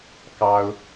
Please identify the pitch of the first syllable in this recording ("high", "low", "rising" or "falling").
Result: high